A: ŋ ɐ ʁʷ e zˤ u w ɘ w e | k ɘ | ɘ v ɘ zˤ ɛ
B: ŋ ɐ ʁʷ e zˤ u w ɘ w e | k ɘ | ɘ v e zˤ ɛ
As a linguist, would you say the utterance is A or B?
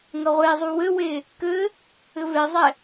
B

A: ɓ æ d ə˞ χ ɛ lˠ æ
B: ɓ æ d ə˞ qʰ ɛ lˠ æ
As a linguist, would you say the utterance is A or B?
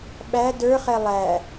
A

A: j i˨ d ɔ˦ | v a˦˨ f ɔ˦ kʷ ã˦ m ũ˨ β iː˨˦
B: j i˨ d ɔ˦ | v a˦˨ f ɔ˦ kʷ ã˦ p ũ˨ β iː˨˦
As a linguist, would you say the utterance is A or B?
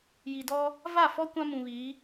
A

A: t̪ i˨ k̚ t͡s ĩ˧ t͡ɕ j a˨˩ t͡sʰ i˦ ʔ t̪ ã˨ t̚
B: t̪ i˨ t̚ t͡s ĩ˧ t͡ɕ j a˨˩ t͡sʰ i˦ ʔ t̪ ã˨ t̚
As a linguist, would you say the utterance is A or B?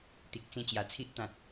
A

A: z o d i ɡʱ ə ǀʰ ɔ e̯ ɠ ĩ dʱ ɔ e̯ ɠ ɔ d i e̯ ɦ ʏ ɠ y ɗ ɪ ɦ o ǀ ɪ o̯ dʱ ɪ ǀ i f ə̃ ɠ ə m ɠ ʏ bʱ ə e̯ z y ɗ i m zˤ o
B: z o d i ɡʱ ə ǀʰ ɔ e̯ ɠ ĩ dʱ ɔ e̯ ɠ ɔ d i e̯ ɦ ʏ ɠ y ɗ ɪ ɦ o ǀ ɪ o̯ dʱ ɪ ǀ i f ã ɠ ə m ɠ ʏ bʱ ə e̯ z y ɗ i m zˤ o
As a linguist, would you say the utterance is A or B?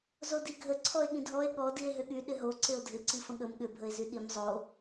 A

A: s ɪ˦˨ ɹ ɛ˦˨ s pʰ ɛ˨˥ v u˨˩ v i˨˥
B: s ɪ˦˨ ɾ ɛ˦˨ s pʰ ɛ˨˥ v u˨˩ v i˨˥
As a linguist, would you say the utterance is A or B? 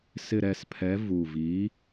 B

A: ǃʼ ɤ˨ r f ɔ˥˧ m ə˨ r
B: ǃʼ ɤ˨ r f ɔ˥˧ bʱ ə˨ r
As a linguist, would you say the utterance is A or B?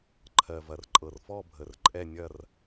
B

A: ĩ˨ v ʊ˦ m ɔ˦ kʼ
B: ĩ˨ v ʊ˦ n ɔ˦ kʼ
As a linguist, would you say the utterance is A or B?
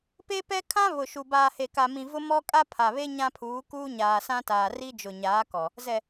A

